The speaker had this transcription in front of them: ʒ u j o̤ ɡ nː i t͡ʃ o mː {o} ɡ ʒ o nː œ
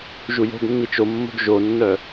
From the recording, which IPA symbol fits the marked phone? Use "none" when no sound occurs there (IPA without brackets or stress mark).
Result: o̤